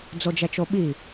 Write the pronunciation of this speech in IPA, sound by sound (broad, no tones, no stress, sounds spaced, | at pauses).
d͡z o d͡ʒ ɛ t͡ʃ o ɓ i